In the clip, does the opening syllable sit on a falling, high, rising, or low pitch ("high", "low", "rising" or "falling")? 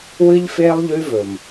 high